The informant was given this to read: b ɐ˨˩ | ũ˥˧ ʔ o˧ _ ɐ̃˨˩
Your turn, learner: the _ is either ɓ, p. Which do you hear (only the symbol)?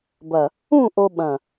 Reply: ɓ